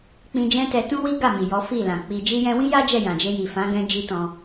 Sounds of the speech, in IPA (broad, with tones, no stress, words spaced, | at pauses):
k͡pĩ˧ d͡ʒɛ̃˦tɛ˧ tũ˦wi˦ ɡa˦˨ mi˨jɔ˨˦fi˦˨lã˨ k͡pi˧ d͡ʒi˧jɛ̃˧wĩ˦ja˦ d͡ʒɛ˦˨jã˨d͡ʒe˧ji˨ fã˨˦ɡɛ̃˧ d͡ʒi˦tɔ̃˧